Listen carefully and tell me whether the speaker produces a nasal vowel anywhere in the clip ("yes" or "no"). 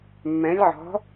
yes